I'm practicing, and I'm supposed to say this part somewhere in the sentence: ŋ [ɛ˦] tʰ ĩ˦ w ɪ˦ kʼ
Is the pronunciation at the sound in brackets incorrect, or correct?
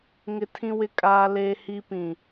incorrect